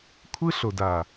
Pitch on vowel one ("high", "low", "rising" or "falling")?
high